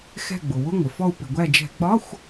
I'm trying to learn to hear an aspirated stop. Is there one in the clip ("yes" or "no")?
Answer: no